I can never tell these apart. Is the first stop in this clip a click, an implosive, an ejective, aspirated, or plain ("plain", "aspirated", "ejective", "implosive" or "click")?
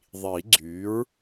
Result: click